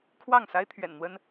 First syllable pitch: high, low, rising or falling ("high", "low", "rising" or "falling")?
falling